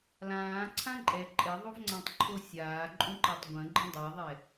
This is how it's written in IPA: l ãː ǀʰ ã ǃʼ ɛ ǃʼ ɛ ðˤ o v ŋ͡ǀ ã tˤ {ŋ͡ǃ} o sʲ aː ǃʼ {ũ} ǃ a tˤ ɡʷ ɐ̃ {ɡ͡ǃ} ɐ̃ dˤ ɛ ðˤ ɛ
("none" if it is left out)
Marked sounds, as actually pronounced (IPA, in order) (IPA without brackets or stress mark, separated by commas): ǃʰ, ũ, ɡ͡ǃ